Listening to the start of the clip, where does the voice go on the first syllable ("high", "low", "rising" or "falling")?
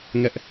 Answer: high